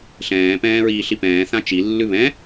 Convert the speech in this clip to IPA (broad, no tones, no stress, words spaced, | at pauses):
ɬɛ̃ːpɛ̃ː ɹiːɬipɛ̃ː θãt͡ʃi lːʉβɛ̃